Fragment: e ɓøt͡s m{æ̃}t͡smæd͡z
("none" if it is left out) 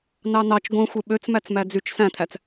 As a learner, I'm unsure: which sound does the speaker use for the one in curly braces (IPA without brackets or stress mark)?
æ